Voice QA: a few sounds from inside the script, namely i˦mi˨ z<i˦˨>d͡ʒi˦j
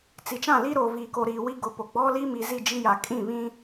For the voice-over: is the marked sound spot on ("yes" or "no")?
yes